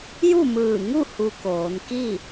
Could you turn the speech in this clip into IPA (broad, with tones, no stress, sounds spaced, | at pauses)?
j u˥˨ m ɯː˧˩ ŋ u˥˨ h u˧ k oː˩˧ n k i˥˨